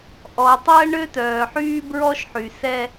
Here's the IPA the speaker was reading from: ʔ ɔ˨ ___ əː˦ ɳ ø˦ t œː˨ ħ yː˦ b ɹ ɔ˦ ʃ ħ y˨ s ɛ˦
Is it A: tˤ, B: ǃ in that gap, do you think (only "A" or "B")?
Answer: A